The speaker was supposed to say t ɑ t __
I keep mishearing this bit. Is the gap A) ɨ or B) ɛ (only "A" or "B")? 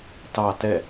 B